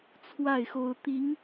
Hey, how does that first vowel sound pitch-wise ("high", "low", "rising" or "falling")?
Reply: falling